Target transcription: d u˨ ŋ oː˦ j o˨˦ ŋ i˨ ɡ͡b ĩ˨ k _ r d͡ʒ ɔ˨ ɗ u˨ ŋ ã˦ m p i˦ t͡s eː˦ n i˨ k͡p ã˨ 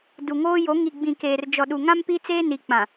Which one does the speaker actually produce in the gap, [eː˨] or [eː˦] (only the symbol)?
eː˨